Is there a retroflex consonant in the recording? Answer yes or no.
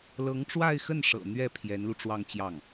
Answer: yes